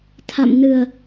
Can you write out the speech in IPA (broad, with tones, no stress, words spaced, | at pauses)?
t̪ʰa̰˧˨m nɨ˨˩ə̯